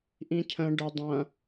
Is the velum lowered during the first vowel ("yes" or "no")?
yes